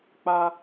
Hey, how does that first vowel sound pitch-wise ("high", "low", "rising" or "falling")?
high